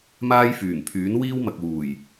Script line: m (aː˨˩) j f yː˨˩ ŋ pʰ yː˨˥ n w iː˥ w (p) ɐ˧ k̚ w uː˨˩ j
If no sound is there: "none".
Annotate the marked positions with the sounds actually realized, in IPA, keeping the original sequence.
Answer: aː˥, m

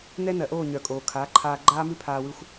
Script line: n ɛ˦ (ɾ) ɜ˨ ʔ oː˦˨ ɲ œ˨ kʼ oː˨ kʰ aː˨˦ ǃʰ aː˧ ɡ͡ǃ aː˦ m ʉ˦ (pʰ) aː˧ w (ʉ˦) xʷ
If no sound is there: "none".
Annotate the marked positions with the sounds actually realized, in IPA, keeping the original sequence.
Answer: n, pʰ, ʉ˧

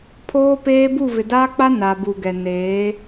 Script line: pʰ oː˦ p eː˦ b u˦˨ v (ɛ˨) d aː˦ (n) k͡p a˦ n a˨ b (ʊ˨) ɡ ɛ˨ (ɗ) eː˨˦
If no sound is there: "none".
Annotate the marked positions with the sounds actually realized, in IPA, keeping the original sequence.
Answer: ɪ˨, none, u˨, n

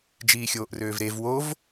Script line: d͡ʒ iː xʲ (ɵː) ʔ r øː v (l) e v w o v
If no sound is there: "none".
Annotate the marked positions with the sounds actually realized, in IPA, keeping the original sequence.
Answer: oː, ɾ

